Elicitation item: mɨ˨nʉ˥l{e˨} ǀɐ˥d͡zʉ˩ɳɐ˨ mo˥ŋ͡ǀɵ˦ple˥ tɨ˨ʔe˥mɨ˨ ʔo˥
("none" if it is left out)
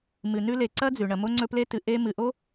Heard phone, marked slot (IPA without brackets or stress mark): e˨